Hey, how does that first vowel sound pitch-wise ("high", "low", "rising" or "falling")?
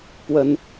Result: high